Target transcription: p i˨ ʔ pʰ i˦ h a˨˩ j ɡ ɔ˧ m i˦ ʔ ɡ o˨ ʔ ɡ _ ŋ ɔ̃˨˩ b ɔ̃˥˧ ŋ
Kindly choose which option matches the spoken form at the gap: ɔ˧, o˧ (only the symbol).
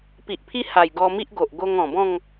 o˧